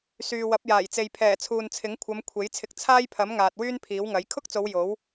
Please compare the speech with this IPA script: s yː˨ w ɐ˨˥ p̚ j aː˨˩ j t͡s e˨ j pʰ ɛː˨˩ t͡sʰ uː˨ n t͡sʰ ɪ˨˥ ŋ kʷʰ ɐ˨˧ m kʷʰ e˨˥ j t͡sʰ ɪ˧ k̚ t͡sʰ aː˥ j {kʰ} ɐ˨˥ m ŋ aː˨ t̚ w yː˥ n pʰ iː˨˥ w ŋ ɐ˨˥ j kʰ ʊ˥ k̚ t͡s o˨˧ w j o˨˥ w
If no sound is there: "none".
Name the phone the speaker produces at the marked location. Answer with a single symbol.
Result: pʰ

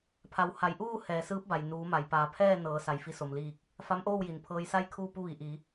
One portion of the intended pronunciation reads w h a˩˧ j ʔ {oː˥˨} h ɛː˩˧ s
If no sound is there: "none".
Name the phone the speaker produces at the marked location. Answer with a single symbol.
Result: uː˥˨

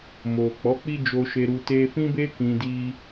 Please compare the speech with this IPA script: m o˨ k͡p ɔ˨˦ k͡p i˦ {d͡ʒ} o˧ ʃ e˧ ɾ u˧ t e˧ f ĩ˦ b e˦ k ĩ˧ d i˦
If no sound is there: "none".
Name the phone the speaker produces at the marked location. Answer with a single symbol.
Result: d͡ʒ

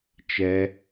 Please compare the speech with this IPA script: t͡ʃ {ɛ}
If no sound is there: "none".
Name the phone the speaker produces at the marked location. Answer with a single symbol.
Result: ɛ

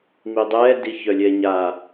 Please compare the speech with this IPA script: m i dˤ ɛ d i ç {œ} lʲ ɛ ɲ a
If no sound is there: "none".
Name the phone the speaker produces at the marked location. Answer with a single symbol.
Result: œ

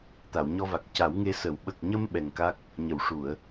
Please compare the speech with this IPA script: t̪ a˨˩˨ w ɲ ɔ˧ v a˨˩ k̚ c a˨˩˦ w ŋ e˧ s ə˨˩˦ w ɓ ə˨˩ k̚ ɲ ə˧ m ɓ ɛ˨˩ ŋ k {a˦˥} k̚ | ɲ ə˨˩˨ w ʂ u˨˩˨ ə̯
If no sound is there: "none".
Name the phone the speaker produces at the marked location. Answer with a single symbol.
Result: a˦˥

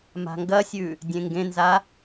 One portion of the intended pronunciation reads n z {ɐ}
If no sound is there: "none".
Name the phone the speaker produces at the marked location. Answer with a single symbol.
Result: a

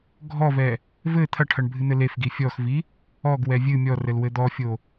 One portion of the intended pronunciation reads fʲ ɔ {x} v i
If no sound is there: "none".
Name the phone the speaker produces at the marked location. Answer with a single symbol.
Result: x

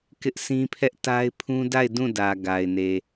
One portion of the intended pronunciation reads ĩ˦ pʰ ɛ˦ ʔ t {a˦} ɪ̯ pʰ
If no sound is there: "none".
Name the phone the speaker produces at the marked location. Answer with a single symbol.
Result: a˦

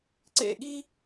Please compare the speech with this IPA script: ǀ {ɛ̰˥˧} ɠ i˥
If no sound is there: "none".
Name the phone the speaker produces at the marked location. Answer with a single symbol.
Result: ḛ˥˧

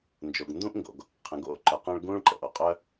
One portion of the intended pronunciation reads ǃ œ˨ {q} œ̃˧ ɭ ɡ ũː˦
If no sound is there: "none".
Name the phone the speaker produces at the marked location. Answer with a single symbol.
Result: q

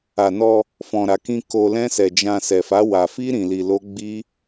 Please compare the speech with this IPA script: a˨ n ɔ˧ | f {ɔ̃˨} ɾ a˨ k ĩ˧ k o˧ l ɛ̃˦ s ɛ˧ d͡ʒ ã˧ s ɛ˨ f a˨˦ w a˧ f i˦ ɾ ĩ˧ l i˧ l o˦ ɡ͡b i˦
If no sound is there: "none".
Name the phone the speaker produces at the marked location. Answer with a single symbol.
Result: ɔ̃˨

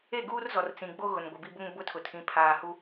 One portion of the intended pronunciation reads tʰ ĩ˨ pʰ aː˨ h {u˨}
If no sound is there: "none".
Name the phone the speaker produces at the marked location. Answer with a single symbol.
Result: u˨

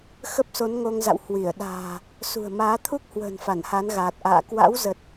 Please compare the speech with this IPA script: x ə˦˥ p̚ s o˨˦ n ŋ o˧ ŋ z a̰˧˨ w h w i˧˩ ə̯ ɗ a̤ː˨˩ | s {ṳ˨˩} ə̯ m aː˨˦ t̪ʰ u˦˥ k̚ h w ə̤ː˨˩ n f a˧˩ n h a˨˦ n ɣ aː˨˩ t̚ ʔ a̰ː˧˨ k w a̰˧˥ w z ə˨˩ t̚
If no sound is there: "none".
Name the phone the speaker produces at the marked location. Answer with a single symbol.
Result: ṳ˨˩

